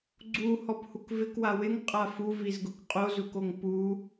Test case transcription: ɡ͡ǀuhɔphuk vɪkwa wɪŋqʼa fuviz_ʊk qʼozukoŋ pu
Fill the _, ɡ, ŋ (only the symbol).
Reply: ɡ